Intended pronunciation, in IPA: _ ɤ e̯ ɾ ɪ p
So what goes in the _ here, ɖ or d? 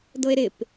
d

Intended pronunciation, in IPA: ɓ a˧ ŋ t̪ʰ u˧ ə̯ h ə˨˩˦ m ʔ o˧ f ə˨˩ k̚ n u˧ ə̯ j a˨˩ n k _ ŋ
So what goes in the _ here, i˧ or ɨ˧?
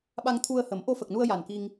i˧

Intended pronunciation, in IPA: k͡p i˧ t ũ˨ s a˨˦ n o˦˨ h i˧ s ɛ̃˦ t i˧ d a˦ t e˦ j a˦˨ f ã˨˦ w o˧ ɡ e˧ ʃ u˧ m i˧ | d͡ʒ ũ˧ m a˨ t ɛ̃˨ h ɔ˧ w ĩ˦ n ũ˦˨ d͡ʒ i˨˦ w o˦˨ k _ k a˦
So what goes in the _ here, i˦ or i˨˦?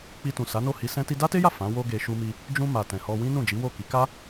i˨˦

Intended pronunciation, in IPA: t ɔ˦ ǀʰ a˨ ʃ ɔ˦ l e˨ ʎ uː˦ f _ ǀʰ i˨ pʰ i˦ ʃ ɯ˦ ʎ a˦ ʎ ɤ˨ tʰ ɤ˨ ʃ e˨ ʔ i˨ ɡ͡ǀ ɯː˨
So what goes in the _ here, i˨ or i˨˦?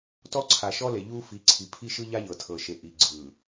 i˨˦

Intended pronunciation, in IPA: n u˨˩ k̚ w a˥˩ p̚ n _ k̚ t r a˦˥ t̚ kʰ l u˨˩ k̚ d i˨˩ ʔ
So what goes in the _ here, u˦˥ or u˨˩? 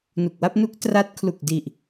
u˦˥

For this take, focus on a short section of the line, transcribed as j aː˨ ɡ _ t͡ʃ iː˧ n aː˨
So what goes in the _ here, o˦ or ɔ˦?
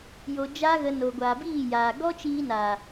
ɔ˦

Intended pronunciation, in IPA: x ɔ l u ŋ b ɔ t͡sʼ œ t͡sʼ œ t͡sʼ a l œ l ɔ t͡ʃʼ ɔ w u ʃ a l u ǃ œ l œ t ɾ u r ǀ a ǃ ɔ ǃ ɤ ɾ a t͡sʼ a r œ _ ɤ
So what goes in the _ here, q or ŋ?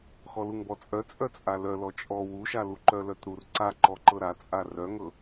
ŋ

